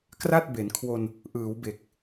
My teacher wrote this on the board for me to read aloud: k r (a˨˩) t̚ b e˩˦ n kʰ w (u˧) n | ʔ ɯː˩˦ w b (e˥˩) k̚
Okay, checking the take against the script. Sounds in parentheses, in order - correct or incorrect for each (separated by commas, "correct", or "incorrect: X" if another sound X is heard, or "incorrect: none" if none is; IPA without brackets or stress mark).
incorrect: a˥˩, incorrect: o˧, incorrect: e˨˩